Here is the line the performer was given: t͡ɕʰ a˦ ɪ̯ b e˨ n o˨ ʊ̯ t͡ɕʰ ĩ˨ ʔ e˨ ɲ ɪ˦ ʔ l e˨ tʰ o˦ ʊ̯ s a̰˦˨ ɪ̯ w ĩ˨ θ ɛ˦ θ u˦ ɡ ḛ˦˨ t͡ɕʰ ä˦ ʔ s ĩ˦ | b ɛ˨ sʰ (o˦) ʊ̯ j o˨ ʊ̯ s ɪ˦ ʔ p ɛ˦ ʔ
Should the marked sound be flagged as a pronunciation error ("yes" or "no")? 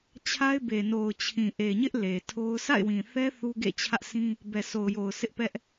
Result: yes